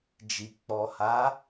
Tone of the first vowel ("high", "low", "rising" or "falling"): low